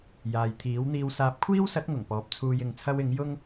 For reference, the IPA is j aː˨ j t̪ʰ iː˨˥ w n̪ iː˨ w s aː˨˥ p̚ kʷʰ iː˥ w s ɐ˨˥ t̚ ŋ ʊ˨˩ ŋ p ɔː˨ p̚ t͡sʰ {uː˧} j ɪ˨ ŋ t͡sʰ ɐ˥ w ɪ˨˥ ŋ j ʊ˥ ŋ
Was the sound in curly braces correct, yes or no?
yes